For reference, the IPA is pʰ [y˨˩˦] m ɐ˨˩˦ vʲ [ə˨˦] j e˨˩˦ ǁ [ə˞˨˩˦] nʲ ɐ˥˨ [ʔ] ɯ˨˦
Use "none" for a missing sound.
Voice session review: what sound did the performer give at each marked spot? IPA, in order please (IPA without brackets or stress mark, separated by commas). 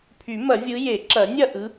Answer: y˨˩˦, ɯ˨˦, ɐ˨˩˦, ʔ